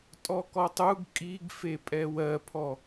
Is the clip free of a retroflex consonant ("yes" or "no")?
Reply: yes